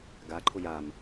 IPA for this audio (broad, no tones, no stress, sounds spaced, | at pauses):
ɡ a ǃʰ ʊ j a m